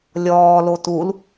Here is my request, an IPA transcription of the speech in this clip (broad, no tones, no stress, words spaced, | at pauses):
lʲɔːlo tul